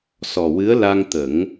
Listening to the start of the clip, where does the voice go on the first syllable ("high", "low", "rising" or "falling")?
low